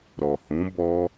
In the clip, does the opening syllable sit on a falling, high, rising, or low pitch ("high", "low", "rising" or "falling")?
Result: low